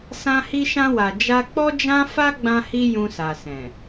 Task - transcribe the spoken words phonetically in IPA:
sã˧hi˧ʃã˧wa˨ d͡ʒa˧k͡pɔ˦d͡ʒã˦ fa˦ɡ͡bã˧hi˧ jũ˧sa˨sɛ̃˨

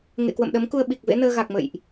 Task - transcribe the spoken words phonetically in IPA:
ŋḛ˧˨kwə̰˧˨mɗə˨˦mku˧ə̯ ɓi˨˩k̚vḛ˧˥nəː˧ ɣa˨˩k̚mə̰˧˨jʔ

